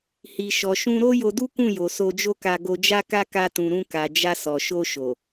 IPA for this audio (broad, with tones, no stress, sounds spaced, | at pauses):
h i˨ ʃ ɔ˨ ʃ ũ˧ ɾ o˦ j o˧ d u˦ k ũ˦˨ j o˨ s o˧ d͡ʒ o˦ k a˧ ɡ o˧ d͡ʒ a˦ k a˦ k a˧ t ũ˨ ɾ ũ˧ k a˨ d͡ʒ a˧ s ɔ˨ ʃ o˧ ʃ o˨